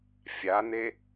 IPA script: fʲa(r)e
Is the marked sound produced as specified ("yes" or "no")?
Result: no